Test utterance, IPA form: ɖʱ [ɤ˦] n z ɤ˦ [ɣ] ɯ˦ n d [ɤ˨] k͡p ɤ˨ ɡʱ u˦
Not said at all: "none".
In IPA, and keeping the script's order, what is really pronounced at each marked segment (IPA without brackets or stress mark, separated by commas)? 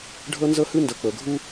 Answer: ɤ˦, h, ɤ˨